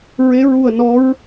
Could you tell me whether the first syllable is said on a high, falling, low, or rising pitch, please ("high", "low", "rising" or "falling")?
rising